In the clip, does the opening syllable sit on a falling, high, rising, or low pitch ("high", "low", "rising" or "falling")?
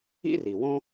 high